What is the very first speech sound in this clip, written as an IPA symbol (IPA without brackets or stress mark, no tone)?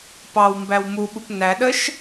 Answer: p